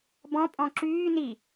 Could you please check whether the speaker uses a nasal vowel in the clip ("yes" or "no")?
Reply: yes